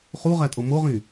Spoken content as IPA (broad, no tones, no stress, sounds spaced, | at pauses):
χ u ʁ æ tʼ o m o ʁ ĩ